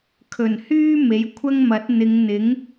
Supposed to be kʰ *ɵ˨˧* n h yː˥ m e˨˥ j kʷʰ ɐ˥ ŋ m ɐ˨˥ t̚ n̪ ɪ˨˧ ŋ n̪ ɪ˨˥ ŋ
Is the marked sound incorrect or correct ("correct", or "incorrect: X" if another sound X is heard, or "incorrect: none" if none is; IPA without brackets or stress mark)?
incorrect: ɵ˨˩